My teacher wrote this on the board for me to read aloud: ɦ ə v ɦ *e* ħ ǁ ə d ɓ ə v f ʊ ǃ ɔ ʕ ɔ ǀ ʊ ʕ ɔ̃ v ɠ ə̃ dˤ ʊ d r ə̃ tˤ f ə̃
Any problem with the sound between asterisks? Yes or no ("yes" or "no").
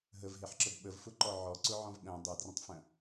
no